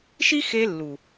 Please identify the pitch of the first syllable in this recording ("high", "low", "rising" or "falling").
high